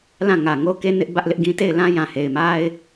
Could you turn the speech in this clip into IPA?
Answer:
l ã˦˨ ŋ ä˨ ŋ o˦ k e˦ n ɪ˦ ʔ b ä˦ ʔ l ɪ˦ ʔ ɡ ĩ˦ t e˦˨ ɪ̯ l ã˦ j ã˨ h e˨ ɪ̯ m a˦ ɪ̯

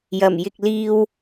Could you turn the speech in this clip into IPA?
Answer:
j ɐ˨˩ m j ɪ˨ k̚ l iː˧ w

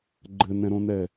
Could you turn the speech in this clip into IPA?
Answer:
ɡ͡ǃ ɘ n ɛ̃ ɾ õ n ɛ

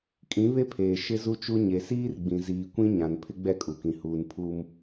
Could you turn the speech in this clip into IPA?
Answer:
kʼ ĩ˨˦ β e˦ pʰ eː˨ ʃ ɪ˦ z u˦ t͡ʃ u˦ ɲ e˨ s iː˦ r ɡ͡b ĩ˨ z iː˨ kʷ ĩ˦ ɲ ã˨ n pʰ ɪ˦ ɡ͡b ɛ˦˨ kʼ u˨ k ĩ˨ h uː˨ n pʰ uː˦ m

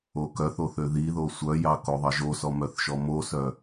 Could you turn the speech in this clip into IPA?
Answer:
o k œ θ o θ ø ð i ð o sʷ œ j ɑ k o ðˤ ɑ ʒ o s ɔ m œ θ ʃ ɔ m o s œ

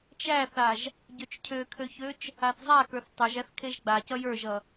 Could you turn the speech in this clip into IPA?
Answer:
t͡ʃ æ θ a ʒ | ɟ ø t͡ʃ cʰ ø kʰ ø ç ø t͡ʃ | a θ zˤ a k ə˞ θ tˤ ə˞ ʒ æ θ kʰ e ʒ ɡ͡b a c ʌ j ə˞ ʒ ʌ

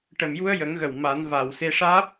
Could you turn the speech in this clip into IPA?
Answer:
ʈ ə˨˩ m j u˧ ə̯ j ə˨˩˦ ŋ ɣ ə˨˩ w m a˨˩˦ n v a˨˩ w s e˧ ʂ aː˦˥ p̚

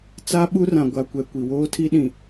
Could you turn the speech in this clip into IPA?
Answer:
t͡s a˦ ɓ u˦ r ã˨ ɡʷ a˨ kʷ ɛ˨ kʷ i˨ w oː˦ tʰ i˦ ɗ ĩ˨

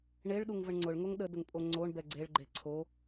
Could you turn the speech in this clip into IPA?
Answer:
ɳ e ɭ ɗ u ŋ v ə ɳ ŋ͡ǀ ʊ ɭ ŋ o ŋ ɗ ə d ʊ ŋ pʼ o ŋ͡ǀ o ɳ b ɛ ɡ͡ǀ e ɭ ɡ͡ǃ e ǀʰ o

